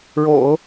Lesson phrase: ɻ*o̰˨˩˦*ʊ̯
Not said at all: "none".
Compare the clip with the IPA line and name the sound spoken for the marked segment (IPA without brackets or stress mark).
o̰˨˩˦